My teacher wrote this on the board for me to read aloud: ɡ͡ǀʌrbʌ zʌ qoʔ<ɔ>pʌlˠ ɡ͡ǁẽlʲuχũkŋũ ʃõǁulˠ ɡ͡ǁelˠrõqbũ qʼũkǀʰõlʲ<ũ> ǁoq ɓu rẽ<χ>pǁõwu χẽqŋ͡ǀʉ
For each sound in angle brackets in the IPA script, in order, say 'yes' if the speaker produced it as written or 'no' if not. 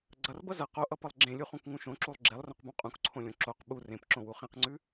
no, no, no

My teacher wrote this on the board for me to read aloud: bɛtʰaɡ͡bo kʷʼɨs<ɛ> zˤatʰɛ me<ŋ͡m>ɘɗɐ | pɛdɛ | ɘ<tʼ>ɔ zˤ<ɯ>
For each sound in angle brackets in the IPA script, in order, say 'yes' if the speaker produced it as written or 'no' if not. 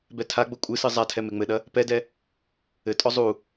no, yes, yes, no

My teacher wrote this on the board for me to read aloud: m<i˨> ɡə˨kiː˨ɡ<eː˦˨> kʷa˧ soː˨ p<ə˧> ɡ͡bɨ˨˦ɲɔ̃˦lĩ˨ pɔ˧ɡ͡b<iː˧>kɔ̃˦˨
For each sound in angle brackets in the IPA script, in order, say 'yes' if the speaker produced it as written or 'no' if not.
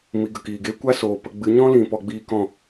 yes, no, yes, yes

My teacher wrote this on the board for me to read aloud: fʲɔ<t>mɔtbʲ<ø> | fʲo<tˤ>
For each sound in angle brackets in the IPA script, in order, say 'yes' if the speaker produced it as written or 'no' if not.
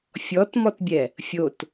yes, no, no

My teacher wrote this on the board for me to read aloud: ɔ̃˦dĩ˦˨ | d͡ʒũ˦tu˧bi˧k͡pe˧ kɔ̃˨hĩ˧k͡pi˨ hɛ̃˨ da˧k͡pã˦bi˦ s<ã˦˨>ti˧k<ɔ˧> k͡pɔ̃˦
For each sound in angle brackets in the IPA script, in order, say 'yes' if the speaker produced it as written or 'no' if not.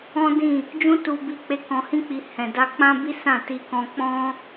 yes, no

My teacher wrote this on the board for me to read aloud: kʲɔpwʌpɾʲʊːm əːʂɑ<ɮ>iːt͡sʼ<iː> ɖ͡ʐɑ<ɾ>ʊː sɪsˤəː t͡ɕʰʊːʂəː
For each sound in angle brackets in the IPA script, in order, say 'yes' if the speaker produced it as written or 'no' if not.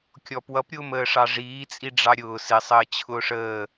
no, no, no

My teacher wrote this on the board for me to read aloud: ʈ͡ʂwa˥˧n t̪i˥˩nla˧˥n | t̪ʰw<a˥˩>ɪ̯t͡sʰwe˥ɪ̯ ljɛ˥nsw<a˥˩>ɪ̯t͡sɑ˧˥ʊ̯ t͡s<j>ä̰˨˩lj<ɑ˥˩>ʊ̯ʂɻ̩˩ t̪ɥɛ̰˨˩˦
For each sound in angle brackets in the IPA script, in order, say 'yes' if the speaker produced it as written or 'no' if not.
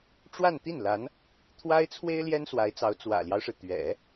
no, no, no, no

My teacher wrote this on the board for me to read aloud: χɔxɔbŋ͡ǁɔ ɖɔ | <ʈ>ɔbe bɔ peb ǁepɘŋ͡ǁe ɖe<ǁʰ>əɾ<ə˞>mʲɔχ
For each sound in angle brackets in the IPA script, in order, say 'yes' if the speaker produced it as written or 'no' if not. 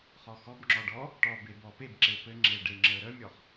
yes, no, no

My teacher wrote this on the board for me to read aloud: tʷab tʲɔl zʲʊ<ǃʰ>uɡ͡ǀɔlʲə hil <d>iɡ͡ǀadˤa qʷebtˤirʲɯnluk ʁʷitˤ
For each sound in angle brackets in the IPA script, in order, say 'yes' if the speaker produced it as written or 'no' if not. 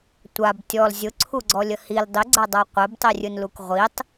no, no

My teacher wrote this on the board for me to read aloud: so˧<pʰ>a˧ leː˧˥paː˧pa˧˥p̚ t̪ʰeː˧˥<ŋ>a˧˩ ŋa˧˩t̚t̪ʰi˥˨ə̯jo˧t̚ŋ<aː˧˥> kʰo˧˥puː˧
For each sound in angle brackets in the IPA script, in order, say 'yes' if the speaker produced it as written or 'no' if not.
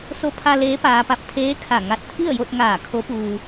yes, no, no

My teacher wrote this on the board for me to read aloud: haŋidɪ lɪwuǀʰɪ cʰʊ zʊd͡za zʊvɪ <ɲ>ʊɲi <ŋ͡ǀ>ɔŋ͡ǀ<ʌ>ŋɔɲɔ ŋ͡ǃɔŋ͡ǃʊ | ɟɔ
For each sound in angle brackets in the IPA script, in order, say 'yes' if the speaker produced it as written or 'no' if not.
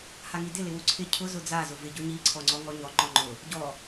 no, no, no

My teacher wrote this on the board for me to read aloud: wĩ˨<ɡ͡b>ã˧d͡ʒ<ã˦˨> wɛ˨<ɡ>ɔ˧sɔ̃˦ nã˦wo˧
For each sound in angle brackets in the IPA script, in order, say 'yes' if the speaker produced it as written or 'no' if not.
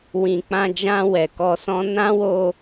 no, no, no

